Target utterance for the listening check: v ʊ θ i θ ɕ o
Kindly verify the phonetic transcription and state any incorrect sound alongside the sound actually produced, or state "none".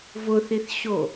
none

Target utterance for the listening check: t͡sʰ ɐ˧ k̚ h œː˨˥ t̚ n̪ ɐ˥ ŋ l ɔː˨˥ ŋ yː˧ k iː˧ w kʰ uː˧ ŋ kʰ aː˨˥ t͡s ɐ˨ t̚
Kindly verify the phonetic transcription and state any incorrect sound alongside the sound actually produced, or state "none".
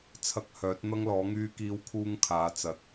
none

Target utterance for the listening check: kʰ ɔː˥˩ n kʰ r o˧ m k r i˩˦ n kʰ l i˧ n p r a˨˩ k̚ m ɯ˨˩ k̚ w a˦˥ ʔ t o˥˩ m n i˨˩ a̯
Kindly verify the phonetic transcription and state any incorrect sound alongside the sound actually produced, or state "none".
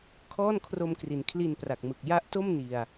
w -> j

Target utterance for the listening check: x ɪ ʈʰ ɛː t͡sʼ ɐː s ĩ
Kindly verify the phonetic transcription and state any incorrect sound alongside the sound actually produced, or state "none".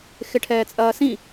none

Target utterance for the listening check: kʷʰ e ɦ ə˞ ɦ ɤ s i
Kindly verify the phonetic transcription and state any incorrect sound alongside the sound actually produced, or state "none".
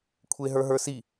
ɤ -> ə˞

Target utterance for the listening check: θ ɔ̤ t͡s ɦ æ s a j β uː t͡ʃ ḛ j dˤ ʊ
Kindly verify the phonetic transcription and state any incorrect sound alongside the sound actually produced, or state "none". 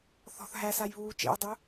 t͡s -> θ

